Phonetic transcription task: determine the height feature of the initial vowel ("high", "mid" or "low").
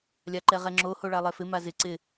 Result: low